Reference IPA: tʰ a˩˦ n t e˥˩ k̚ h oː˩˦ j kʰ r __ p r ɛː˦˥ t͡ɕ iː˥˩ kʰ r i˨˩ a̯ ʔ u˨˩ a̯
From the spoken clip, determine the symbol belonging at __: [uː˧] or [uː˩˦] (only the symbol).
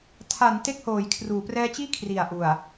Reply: uː˩˦